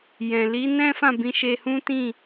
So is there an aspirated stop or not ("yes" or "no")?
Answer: no